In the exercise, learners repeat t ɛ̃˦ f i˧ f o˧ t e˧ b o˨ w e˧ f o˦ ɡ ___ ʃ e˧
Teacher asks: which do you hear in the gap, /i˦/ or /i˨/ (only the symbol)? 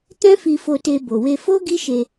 i˦